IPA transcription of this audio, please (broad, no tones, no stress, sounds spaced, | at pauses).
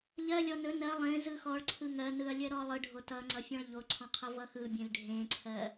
ʎ ɜ lʲ ɔ n ɵ n ɜ lˠ ẽ z ɯ x ɔ ɭ ǀʰ ɯ ŋ ɜ n ɯ ɐ̯ lʲ ɜ ɾ ɔ lˠ ɯ ɖʱ o t ʌ ŋ͡ǀ ʌ fʲ ɔ̃ ɭ ʎ o ǀʰ ɔ̃ qʰ ʌ v ʌ x ɯ bʲ ẽ l ɖʱ ẽ ǀʰ ɜ